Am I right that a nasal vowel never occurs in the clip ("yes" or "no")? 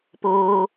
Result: yes